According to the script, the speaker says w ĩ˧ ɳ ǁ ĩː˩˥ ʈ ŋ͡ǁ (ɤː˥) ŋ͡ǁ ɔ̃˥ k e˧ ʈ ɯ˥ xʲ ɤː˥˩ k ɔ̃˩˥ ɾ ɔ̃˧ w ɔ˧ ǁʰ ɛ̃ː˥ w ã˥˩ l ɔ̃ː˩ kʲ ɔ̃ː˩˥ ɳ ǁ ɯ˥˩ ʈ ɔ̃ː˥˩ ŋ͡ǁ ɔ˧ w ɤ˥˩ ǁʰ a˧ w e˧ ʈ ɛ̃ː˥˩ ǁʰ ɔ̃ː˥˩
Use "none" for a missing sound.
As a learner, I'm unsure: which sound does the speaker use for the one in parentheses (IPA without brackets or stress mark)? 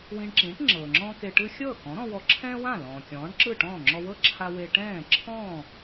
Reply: ɤː˩